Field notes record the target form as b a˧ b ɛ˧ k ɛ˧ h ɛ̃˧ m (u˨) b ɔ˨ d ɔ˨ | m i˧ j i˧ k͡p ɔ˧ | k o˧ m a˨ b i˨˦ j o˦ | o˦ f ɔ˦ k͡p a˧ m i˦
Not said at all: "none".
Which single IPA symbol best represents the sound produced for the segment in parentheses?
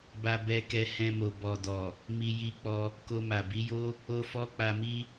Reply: o˨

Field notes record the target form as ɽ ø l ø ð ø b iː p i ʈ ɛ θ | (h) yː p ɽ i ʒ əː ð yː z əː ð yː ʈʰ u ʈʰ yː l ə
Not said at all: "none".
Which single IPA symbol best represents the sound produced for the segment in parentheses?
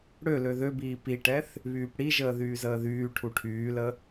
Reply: β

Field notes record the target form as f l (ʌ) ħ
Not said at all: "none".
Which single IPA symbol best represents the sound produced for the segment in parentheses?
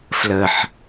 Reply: ə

